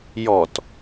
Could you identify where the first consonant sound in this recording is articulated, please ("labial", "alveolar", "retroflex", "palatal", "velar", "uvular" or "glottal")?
palatal